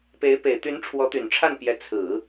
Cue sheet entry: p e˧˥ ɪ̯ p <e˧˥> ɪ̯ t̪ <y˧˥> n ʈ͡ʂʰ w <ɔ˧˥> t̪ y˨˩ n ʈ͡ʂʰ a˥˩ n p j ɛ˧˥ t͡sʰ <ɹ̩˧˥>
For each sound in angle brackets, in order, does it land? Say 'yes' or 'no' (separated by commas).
no, yes, yes, no